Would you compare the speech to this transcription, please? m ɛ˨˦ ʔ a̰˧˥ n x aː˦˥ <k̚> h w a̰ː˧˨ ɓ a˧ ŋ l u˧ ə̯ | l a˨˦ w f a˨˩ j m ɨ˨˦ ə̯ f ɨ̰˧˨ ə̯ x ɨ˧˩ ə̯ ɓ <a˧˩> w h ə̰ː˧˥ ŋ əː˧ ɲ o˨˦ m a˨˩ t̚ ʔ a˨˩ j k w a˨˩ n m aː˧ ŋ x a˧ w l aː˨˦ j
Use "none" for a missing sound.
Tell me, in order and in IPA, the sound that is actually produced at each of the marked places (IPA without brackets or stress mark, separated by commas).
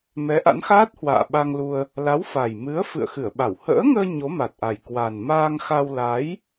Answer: t̚, a˧˩